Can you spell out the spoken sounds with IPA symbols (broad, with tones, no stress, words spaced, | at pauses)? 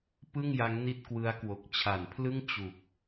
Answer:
pɯ˥˩ŋja˦˥ŋ ni˥˩t̚kwɯ˦˥a̯kwo˨˩k̚ t͡ɕʰa˩˦npʰlɯ˥˩ŋ t͡ɕu˨˩k̚